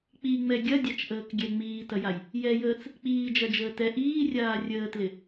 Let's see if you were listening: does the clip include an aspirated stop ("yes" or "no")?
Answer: no